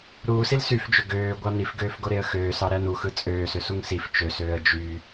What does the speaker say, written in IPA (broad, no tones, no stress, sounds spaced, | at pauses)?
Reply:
ɾ uː s i l s y f d͡ʒ ø ɡ øː ɡʷ ɑ n i f ɡ øː f ɡ o ɾ e ə̯ x øː s ɑ ɾ æ n u x ɯ t͡sʼ øː s ø s u ŋ s i f t͡ʃ ø s øː ə̯ d͡ʒ y